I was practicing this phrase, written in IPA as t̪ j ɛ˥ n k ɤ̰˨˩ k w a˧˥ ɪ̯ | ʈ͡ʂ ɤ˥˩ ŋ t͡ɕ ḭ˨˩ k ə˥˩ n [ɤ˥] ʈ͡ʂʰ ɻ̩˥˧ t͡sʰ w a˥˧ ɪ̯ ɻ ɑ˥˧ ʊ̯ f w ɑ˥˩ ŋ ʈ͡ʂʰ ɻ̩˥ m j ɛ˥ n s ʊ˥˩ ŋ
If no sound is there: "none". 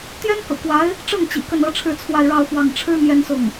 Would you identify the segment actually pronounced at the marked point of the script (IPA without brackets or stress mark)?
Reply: ɤ˥